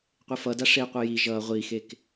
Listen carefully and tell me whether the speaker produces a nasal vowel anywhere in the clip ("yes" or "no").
no